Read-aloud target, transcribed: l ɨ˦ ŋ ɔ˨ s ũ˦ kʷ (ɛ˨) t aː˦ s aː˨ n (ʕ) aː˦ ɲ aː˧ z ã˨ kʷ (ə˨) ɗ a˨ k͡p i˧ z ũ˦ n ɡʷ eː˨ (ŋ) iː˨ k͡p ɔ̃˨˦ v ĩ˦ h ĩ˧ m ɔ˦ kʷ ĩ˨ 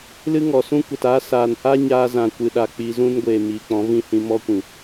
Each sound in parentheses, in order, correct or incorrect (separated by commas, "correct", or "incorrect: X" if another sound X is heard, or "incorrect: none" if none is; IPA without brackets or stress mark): correct, incorrect: h, incorrect: ɨ˨, incorrect: m